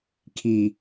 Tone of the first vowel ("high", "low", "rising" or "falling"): low